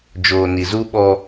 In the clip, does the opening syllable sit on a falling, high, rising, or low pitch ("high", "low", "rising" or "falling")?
low